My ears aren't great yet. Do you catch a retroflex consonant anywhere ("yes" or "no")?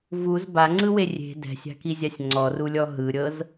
no